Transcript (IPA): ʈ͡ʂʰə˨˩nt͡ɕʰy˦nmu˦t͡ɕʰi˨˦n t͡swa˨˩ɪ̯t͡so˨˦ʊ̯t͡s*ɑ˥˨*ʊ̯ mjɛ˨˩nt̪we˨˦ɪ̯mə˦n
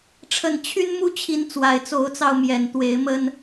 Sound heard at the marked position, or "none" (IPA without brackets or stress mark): ɑ˧